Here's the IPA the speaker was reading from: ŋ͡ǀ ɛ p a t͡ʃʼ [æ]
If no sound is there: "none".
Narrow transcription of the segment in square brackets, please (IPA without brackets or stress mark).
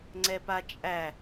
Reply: æ